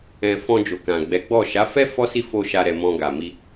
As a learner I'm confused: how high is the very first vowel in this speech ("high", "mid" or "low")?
mid